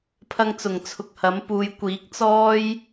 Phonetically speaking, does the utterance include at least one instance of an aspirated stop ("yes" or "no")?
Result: yes